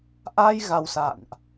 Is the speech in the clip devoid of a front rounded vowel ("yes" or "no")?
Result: yes